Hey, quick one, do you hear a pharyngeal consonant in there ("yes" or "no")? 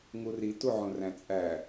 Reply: yes